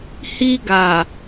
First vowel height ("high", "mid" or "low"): high